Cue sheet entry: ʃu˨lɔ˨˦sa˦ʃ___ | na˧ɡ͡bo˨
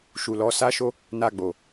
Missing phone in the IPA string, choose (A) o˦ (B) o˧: A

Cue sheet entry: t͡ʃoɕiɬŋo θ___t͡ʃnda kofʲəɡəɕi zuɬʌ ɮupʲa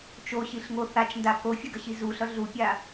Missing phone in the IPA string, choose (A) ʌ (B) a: B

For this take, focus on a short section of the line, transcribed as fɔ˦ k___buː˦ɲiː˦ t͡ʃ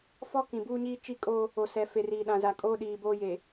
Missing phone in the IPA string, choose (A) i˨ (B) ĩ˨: B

